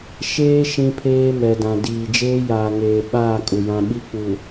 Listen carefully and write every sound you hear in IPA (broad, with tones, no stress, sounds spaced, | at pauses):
ʃ eː˦ ʃ ĩ˦ pʰ eː˦ m ɛ˨ d ã˨ d iː˨ d͡ʒ eː˦ j aː˨ ŋ eː˨ ɓ aː˦˨ kʼ u˨ j ã˦ ɓ i˦ k͡p u˨